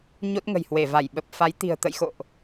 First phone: ɲ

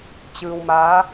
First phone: t͡ɕ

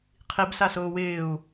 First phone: qʰ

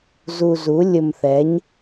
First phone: z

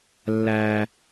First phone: lː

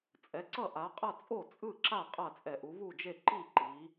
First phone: t͡sʼ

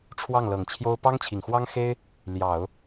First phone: ʈ͡ʂʰ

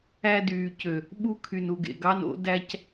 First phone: æ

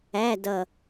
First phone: æ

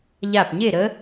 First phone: ʎ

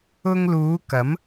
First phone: ʊ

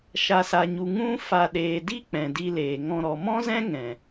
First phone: ʃ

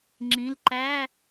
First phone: ŋ͡ǁ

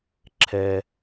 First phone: ǁʰ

